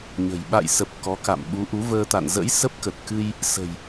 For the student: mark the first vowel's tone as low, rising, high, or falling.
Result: low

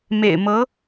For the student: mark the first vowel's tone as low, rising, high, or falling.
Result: low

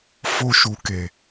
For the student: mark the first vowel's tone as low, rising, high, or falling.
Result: high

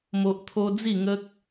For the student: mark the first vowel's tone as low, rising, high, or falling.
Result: high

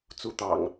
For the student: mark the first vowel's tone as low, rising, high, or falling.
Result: rising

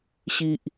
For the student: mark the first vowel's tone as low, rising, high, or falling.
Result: low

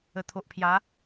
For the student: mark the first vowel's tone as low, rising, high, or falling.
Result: low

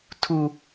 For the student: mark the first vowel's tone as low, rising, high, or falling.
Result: high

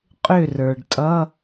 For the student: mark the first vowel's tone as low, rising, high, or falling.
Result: falling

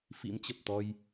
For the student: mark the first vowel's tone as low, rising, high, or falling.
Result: rising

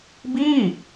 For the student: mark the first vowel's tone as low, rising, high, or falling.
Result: falling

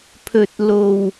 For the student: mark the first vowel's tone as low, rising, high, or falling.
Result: low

